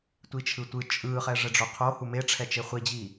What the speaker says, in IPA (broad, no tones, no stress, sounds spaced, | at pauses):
tʷ i t͡ʃʰ ɯ tʷ ɯ t͡ʃʼ ɯ χ ɛ ʐ ɛ ɖ͡ʐ o qʰ o h u m e ʈ͡ʂʰ ɛ t͡ʃ e χʷ i d͡ʑ i